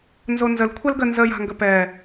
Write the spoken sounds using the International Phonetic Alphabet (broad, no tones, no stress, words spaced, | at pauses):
nzonzəl kʷʰɐlɡə nzə ja̤ŋɡəpɛː